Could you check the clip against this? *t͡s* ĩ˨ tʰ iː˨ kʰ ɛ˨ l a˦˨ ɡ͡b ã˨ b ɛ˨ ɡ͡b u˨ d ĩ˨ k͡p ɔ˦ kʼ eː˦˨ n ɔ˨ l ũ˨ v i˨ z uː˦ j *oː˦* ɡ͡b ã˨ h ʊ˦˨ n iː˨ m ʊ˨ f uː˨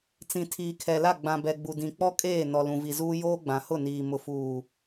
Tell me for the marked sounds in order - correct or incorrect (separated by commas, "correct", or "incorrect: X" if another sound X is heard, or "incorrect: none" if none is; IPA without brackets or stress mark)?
correct, correct